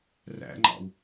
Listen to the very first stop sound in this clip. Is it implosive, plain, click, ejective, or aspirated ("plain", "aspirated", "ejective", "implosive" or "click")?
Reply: click